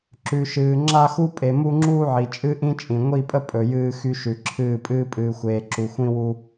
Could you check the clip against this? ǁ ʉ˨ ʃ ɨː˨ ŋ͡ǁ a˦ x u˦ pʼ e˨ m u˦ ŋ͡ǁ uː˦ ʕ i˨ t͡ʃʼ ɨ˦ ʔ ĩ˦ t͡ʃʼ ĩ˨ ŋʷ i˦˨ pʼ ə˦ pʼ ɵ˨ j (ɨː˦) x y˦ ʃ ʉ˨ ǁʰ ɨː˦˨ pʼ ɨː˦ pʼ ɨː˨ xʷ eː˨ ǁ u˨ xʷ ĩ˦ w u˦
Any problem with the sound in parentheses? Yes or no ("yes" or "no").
no